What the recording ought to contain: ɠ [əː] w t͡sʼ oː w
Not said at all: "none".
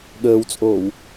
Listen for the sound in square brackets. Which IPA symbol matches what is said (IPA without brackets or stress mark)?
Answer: əː